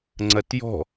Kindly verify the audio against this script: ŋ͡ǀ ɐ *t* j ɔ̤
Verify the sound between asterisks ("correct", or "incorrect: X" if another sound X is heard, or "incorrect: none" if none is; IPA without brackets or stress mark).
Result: correct